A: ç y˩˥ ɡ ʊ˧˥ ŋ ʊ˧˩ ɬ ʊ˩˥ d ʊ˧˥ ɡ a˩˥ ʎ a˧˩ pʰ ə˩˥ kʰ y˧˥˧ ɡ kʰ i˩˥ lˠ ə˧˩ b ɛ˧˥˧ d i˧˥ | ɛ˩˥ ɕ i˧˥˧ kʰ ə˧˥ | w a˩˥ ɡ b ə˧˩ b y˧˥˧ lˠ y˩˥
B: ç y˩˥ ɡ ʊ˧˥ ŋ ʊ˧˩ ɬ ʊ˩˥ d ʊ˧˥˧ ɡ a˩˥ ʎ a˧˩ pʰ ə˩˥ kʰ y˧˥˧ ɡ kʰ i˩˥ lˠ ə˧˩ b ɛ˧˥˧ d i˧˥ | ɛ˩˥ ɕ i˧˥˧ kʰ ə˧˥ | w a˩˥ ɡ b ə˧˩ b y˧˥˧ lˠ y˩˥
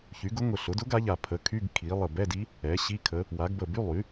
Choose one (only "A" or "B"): A